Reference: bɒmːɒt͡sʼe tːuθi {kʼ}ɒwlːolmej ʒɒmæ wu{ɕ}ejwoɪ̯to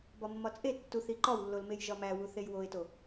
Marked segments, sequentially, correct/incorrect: incorrect: ǃ, incorrect: θ

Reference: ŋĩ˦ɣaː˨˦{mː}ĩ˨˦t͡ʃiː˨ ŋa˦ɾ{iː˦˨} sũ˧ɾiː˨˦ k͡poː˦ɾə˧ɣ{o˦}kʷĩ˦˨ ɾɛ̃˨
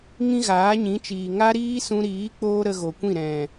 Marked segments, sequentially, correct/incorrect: incorrect: ɲ, incorrect: iː˦, incorrect: o˨

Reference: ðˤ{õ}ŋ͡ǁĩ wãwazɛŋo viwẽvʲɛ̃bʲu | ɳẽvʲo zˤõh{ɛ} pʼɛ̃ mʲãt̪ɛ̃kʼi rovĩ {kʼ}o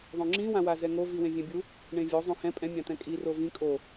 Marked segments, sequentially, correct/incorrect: correct, incorrect: ɛ̃, correct

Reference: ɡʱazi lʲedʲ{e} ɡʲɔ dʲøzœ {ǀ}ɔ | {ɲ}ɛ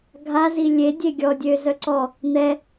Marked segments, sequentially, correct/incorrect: correct, correct, incorrect: n̪

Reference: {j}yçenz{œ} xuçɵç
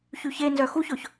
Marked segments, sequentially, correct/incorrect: incorrect: ç, correct

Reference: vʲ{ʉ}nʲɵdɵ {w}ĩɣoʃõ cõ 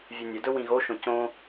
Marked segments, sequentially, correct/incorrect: correct, correct

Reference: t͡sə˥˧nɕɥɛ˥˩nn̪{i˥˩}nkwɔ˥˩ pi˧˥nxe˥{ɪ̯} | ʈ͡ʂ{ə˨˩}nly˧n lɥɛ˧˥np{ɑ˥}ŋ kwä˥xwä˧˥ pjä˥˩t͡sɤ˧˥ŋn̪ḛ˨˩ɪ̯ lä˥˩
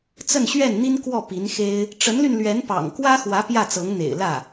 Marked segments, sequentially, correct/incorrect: incorrect: i˥, correct, incorrect: ə˧˥, incorrect: ɑ̰˨˩

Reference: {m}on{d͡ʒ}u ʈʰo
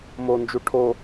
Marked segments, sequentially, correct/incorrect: correct, correct

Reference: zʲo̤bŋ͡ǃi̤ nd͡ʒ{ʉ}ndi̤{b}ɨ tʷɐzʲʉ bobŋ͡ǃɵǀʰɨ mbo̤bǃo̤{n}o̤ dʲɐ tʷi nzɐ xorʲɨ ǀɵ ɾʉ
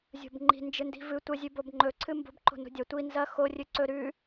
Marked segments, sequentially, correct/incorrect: incorrect: ɨ, incorrect: v, correct

